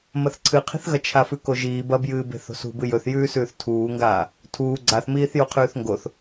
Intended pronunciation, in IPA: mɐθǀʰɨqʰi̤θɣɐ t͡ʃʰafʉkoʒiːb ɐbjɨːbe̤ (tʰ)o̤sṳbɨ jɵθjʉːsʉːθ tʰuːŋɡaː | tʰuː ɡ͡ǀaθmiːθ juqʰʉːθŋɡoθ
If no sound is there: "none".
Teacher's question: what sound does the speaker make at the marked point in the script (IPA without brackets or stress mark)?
θ